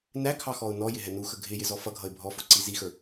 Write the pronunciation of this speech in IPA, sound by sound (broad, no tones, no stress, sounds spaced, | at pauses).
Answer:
n æ kʰ ɑ x ɔ ʊ̯ n ɔ j ɪ ɦ ɛ n u x ə ɡʱ ɪ j ɪ z ɔ f ʌ ɡʱ ʌ ɪ̯ bʱ ɔ f ʊ ǀ i z i x ə˞